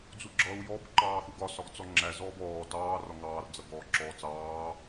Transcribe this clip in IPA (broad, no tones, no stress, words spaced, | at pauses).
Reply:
d͡zuɡ͡ǁʌːu̯jɔb ǃɑːxuɡɒ sɒɡt͡sɔŋ͡ǁæ zɔːbɔː tɑː rɒŋɑːr d͡zʌɡɔːǁɔːt͡sɑː